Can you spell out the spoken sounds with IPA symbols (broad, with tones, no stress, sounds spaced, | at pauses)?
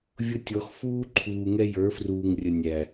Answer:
vʲ ʊ˦ tʲ ɔ˨˦ x f uː˦ ǃʰ uː˨ ŋ ɛ˦ j ə˞˨˦ f r uː˨ ŋ rʲ ə˨ nʲ æ˨